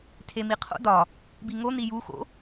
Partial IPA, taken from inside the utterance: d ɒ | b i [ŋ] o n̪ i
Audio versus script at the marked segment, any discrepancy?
no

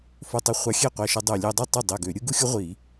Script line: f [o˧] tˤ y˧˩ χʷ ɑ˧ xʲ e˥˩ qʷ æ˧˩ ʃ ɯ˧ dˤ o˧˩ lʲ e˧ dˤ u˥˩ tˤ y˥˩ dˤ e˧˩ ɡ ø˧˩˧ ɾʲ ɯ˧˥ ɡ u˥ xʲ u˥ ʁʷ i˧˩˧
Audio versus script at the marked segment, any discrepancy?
no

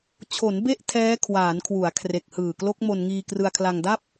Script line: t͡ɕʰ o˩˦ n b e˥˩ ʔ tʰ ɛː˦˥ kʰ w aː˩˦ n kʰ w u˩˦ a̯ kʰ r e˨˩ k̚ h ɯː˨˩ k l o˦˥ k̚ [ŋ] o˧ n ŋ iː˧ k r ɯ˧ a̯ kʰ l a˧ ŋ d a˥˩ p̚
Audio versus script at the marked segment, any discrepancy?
yes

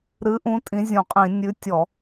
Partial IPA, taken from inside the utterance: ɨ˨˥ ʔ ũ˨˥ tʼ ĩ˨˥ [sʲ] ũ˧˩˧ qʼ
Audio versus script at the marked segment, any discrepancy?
yes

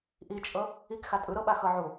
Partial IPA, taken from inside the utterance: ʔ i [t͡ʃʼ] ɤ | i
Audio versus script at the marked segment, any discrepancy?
no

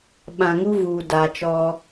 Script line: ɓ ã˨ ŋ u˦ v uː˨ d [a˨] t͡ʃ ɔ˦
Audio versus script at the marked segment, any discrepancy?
no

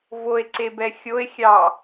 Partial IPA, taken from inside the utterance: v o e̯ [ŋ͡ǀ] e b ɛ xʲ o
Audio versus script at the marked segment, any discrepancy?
yes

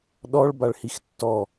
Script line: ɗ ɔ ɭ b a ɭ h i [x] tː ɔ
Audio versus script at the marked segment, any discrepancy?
no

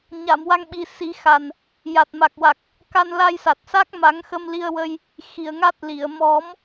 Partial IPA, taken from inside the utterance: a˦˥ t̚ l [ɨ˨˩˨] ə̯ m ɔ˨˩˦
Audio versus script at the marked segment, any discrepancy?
yes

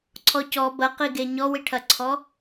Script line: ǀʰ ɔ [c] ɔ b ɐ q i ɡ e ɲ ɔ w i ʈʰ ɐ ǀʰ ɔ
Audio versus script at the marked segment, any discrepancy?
no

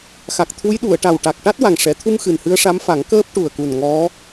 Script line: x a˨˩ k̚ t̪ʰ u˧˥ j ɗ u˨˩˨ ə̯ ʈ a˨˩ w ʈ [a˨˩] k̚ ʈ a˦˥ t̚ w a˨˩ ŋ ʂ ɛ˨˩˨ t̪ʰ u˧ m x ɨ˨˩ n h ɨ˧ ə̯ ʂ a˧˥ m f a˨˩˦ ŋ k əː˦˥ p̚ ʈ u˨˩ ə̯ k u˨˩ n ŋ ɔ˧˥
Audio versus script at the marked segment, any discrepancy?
no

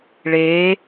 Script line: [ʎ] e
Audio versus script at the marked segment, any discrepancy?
yes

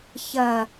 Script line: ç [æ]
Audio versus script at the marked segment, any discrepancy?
yes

